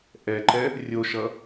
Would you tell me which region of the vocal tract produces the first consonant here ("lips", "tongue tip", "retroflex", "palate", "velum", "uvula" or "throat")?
throat